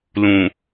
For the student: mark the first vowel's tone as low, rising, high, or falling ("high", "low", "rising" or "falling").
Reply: low